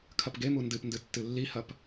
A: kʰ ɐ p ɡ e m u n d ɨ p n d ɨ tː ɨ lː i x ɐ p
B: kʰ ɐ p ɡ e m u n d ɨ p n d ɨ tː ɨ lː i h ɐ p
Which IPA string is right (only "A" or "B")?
B